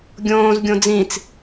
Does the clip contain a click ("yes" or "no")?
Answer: no